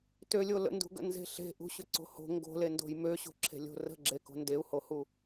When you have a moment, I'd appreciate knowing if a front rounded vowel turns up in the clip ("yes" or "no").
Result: yes